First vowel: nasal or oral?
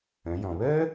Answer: nasal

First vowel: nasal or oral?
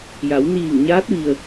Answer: oral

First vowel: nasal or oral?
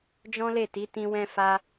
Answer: nasal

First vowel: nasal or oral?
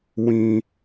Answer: nasal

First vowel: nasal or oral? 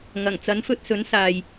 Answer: oral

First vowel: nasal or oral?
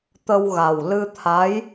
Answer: oral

